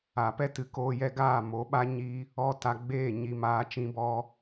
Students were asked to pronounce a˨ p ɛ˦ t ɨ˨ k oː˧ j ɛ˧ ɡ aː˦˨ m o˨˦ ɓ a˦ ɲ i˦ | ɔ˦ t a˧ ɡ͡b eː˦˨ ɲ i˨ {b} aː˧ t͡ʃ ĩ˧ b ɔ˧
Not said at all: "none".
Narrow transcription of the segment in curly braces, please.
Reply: m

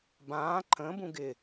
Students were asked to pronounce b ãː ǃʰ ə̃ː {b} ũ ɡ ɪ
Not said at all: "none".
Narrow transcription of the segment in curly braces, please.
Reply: b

